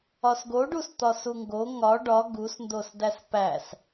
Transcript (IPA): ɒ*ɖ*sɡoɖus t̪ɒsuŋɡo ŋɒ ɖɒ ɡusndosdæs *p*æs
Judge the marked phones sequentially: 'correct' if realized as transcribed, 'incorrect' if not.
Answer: incorrect, correct

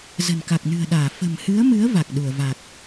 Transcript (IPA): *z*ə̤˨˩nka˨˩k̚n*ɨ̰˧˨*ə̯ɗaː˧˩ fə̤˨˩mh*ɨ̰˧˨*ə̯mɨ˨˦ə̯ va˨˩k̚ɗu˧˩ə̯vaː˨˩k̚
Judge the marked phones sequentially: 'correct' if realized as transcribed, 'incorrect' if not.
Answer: correct, incorrect, incorrect

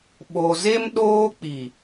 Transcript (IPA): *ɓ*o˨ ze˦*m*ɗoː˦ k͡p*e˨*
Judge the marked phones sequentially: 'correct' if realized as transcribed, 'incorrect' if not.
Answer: correct, correct, incorrect

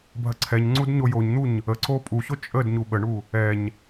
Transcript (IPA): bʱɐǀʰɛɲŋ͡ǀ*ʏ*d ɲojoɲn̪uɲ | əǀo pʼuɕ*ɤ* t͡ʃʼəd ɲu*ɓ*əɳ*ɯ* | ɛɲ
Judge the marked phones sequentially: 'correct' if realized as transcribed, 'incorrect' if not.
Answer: incorrect, incorrect, correct, incorrect

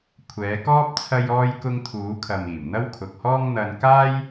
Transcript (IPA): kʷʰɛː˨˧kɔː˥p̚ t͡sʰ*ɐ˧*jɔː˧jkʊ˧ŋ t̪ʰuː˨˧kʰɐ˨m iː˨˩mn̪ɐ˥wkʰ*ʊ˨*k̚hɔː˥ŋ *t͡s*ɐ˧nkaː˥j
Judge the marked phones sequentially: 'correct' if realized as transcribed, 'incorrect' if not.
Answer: correct, correct, incorrect

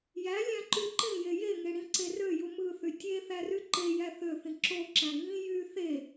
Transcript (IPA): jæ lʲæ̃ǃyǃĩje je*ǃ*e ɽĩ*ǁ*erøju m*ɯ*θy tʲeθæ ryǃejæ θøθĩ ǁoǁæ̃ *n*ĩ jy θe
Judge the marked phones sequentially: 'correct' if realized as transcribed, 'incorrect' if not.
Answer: incorrect, incorrect, correct, incorrect

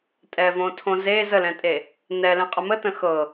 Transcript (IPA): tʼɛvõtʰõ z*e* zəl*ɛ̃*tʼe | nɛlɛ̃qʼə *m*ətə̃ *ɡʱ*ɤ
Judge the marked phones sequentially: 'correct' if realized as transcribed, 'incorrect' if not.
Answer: correct, correct, correct, incorrect

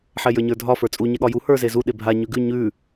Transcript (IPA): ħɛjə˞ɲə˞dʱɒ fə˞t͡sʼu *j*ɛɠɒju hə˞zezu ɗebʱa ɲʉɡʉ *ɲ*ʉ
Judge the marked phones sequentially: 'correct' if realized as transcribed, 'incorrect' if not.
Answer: incorrect, correct

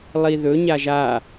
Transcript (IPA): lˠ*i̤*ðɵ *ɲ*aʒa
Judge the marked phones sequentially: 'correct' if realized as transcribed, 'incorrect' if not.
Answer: incorrect, correct

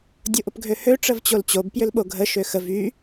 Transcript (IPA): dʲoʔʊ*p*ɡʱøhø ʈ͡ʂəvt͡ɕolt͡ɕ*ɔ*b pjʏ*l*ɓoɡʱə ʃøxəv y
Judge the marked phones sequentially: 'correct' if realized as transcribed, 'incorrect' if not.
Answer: correct, incorrect, correct

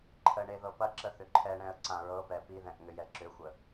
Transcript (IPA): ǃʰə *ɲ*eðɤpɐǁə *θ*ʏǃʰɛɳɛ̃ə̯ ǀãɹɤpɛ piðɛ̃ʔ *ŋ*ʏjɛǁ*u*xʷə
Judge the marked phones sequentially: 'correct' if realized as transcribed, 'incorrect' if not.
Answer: incorrect, correct, correct, incorrect

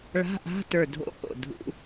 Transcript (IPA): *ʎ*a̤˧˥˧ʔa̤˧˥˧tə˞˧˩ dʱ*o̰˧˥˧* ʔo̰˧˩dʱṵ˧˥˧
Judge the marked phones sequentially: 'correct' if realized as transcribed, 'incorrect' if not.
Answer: incorrect, correct

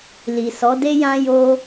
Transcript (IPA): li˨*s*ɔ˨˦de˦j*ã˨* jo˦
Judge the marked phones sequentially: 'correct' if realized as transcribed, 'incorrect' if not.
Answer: correct, incorrect

